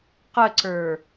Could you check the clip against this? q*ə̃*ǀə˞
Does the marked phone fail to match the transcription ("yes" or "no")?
yes